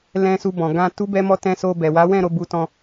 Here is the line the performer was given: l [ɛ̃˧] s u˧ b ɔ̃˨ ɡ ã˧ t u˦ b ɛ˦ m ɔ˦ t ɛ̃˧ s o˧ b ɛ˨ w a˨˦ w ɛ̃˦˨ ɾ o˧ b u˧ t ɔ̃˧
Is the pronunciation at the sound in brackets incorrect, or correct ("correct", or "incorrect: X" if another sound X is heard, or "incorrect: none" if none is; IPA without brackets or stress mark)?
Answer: correct